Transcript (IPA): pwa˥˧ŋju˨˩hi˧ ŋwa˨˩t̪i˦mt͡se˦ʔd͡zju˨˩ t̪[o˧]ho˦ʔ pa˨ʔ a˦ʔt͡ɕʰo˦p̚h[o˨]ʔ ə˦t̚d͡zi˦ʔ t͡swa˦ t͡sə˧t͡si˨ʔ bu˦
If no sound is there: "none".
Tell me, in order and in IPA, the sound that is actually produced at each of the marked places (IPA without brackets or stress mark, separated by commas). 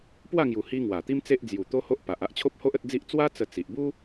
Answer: o˦, o˦